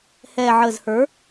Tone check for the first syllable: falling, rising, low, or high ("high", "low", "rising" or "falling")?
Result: low